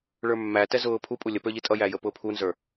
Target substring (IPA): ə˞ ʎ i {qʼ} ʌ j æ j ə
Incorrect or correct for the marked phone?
incorrect: tʼ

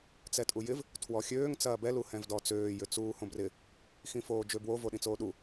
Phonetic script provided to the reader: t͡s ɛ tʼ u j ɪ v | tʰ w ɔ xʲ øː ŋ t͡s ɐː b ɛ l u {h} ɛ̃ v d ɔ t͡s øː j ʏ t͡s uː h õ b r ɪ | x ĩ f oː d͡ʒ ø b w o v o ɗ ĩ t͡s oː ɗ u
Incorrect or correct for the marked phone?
correct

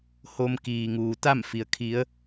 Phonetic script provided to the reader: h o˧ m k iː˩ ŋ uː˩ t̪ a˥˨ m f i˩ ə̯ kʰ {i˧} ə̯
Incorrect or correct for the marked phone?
incorrect: i˩˧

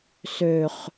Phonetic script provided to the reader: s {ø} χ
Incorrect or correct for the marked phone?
correct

